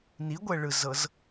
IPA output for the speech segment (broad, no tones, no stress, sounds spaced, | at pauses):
n i ɡʷ ɛ ɭ ɯ z ɤ z